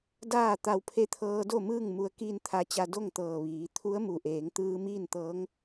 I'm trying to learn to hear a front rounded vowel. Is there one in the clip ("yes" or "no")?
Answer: no